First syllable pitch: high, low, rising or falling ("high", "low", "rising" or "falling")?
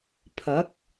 rising